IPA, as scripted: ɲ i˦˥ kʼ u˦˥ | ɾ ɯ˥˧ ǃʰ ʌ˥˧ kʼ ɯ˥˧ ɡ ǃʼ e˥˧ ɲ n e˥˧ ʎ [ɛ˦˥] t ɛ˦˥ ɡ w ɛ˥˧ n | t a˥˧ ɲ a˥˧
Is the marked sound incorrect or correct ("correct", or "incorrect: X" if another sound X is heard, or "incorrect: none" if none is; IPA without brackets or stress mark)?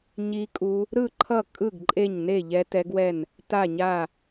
correct